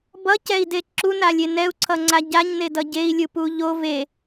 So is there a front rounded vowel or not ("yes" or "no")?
no